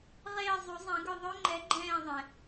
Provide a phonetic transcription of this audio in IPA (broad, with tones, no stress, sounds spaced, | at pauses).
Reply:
ʁ eː˦˨ zˤ u˨˩˦ zˤ ɛ̃˨˩˦ ɡ ʏ˦˨ ðˤ ø˦˥ ŋ͡ǃ ɛ˨˥ ɡ͡ǃ ɛ̃ː˦˨ ðˤ ɛ̃˩